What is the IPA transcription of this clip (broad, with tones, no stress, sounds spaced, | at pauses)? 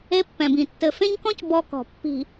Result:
e˦ pː ɛ̃˨ b ĩ˨ tː ɘ˨ f ẽ˦ ɲ k ɔ̃˦ c b ɔ˦ k ɔ̤˨ pː i̤˨